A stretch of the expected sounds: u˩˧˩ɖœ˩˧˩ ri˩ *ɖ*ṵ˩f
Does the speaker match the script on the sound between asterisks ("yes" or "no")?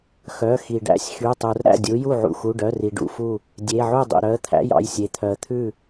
yes